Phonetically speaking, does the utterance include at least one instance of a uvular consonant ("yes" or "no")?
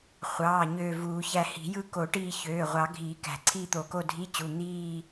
yes